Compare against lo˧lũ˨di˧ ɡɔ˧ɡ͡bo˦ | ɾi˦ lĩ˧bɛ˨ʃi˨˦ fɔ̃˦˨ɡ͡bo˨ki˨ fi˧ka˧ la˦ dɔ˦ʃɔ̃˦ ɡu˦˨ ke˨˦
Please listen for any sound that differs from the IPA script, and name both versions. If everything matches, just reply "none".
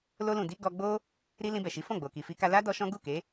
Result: none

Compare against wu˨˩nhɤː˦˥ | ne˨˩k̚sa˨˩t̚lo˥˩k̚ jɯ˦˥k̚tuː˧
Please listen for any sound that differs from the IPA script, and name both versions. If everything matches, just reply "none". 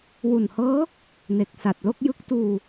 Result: none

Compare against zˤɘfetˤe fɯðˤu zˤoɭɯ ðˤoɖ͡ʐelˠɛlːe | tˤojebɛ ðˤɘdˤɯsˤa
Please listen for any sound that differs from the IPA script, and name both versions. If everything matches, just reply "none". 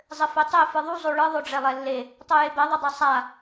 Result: none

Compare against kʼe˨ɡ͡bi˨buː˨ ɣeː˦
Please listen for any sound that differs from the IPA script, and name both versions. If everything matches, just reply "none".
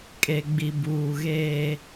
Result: none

